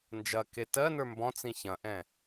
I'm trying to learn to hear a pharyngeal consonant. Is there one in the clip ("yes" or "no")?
no